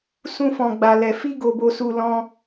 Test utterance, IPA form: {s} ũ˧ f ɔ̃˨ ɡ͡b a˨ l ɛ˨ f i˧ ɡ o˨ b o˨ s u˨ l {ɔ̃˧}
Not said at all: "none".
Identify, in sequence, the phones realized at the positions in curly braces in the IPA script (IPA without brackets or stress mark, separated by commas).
s, ɔ̃˧